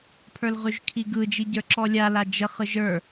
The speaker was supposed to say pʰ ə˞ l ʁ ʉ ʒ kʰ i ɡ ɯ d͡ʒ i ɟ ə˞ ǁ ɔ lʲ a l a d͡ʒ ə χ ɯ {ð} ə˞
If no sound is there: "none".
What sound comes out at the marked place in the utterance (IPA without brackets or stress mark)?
ʒ